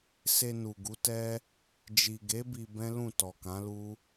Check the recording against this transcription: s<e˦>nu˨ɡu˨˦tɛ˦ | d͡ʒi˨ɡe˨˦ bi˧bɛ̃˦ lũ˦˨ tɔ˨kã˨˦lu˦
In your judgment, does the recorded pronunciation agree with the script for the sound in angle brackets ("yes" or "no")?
no